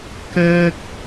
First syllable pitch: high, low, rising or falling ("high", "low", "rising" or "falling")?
high